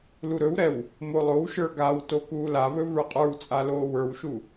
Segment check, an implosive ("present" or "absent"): absent